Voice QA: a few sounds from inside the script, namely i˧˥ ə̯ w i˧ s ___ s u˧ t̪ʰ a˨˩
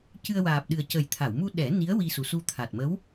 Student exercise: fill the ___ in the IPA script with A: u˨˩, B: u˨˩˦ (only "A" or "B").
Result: A